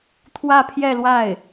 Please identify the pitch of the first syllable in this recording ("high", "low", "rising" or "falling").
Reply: falling